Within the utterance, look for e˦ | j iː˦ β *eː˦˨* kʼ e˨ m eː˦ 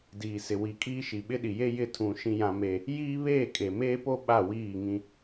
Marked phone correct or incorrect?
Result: correct